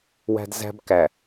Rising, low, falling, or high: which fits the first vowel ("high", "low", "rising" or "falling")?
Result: high